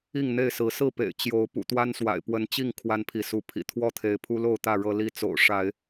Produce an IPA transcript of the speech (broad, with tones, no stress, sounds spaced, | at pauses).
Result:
i˥˨ ŋ n̪ e˥˨ ɪ̯ s ɹ̩˨˦ s ɹ̩˥˨ p ḛ˨˩ ɪ̯ t͡ɕ j o˨˦ ʊ̯ p ṵ˨˩ t̪ w a˦ n s w a̰˨˩ ɪ̯ p w ə˨˦ n t͡ɕ i˥˨ ŋ kʰ w a˦ n pʰ i˨˦ s u˨˦ pʰ ḭ˨˩ t̪ʰ w ɔ˥˨ t̪ʰ e˨˦ ɪ̯ pʰ u˦ l o˥˨ ʊ̯ t̪ ä˥˨ ɻ ɤ˦ l i˥˨ t͡s o̰˨˩ ʊ̯ ʂ a˨˦ ɪ̯